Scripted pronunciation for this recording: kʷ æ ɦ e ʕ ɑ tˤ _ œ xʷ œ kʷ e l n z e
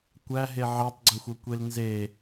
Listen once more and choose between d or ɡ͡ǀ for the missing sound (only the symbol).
ɡ͡ǀ